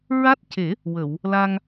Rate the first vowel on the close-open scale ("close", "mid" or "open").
open